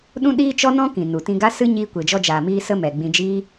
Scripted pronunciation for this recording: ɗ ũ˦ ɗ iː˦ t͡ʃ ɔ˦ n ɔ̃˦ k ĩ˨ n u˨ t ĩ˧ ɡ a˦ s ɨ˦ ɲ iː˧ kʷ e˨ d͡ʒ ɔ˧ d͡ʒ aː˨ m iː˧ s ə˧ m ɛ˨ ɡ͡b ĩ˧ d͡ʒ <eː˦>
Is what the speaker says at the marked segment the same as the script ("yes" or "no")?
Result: no